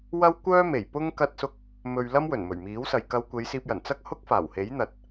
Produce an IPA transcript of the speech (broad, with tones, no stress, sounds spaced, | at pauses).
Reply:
w ɐ˥ w kʷ œː˥ m e˨˩ j p ʊ˥ ŋ k ɐ˥ t̚ s ʊ˥ k̚ | m ɵ˧ ɥ l ɐ˥ m w ɵ˨˩ n m ɵ˨˩ ɥ m iː˨˥ w s ɐ˨ j k ɐ˧ w kʷ e˨˧ j s iː˧ p̚ j ɐ˨˩ n t͡s ɐ˥ k̚ h ʊ˥ k̚ f aː˨˩ w h e˨˥ j n̪ ɐ˨ t̚